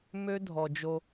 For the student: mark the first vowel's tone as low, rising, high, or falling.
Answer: high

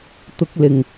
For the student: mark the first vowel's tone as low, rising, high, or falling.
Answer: high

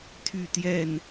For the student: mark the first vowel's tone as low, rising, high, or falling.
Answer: falling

